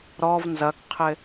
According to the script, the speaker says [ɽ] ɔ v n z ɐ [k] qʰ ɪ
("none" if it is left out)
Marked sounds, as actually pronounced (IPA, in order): ɾ, k

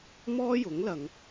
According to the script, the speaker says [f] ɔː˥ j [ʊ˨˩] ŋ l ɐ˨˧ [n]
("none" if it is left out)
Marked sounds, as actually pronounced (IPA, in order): m, ʊ˨˥, ŋ

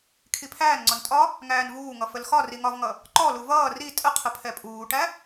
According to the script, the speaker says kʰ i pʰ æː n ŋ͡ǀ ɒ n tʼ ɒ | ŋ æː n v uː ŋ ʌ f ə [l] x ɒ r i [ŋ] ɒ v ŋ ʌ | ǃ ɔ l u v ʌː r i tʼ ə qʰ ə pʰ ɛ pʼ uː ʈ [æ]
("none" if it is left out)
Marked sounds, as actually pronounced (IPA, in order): l, ŋ, æ

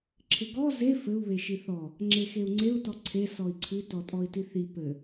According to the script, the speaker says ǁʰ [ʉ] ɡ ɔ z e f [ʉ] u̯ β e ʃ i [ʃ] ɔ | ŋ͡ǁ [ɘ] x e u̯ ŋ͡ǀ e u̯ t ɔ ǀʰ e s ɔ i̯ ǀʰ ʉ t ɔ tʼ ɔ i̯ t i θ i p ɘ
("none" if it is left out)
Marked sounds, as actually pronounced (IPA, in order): ɘ, ɘ, θ, e

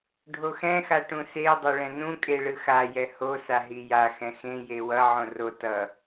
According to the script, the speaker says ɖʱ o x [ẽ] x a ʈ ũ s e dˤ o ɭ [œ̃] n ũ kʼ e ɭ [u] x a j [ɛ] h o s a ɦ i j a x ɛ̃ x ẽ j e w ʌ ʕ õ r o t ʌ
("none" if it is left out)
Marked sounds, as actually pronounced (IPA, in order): ɛ̃, ɛ̃, ɯ, ɛ

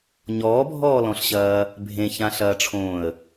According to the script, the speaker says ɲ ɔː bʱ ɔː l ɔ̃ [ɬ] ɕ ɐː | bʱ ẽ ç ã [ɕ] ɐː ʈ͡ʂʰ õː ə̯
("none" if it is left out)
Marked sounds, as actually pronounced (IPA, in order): ɬ, ɬ

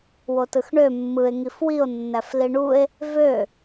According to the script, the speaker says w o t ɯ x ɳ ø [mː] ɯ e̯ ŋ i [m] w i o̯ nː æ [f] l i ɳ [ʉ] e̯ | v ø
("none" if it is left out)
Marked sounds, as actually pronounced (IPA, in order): mː, f, f, u

